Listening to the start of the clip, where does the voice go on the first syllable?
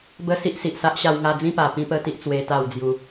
high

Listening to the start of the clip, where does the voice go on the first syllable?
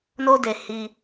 high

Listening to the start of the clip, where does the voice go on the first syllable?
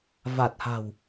low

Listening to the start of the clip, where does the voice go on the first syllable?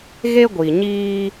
high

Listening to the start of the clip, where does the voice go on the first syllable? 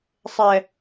low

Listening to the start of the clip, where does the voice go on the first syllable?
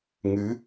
rising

